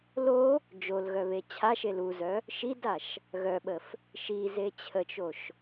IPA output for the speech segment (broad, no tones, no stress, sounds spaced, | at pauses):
l o | d͡ʒ o l ɣ œ β e t͡ɕʰ a ʃ e l u z œ | ʃ i d a ʃ | ɣ œ ɓ ə f | ʃ i z e t͡ɕʰ ə t͡ʃ o ʃ